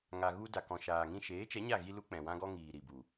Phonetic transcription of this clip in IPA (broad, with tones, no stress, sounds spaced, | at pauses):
ŋ a˨ ɣ u˧ d a˨ k ɔ̃˨ ʃ aː˨ ŋ ĩ˧ ʃ eː˨˦ t͡ʃ ɛ˨˦ ɲ a˦˨ ɣ i˧ l u˦ k͡p ɛ̃˨ w ã˦ ɡ ɔ˦ ŋ iː˨ ɾ i˨ b u˨